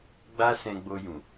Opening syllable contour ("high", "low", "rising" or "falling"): high